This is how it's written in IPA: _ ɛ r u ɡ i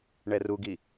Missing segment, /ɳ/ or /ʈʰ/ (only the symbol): ɳ